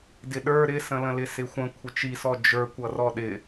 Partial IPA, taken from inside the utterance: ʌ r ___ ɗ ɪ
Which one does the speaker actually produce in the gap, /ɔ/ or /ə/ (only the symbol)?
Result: ɔ